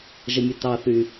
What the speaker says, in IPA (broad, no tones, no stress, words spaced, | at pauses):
ʒəmʲətɑθy